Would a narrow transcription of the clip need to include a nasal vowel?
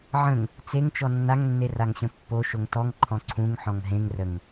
yes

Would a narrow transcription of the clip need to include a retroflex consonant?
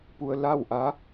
no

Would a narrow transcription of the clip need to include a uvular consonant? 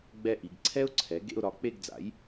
no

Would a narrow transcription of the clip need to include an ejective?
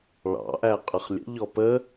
yes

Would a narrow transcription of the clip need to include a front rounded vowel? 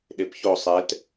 no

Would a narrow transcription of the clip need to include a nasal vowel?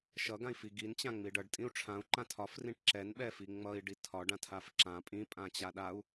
yes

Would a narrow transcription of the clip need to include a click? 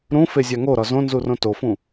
no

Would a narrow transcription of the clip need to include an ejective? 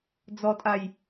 yes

